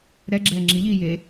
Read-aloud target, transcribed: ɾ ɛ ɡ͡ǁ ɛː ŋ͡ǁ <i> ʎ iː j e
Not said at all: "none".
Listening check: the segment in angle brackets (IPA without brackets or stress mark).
i